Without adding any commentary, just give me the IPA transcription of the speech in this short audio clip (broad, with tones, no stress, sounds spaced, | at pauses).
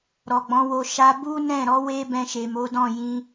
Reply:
ɾ ɔ˨ ɡ͡b ɔ̃˨˦ w o˧ ʃ a˧ b u˦ n ɛ̃˦˨ ɾ ɔ˨˦ w e˦ b ɛ̃˧ ʃ e˨ m o˨˦ d ɔ̃˦˨ j ĩ˧